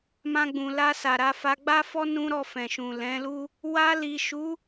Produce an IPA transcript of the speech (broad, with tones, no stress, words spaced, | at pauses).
mã˧ɡ͡bũ˨la˧ sa˨ɾa˧fa˧ ɡ͡ba˦fɔ˦ nũ˦ɾɔ˦˨fɛ̃˨ ʃũ˨lɛ̃˨˦lu˦ | wa˧li˨ʃu˨˦